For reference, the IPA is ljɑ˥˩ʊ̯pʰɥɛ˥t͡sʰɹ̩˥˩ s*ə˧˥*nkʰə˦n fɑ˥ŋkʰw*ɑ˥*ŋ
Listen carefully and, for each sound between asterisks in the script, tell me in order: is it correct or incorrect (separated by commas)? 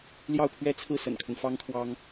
incorrect, correct